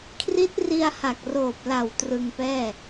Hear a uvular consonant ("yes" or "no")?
no